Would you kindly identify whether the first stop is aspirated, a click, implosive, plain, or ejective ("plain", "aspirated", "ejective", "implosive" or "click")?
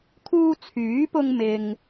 aspirated